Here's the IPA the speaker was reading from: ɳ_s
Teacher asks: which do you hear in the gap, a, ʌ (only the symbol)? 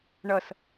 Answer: ʌ